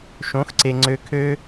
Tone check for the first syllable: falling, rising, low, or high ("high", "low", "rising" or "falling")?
rising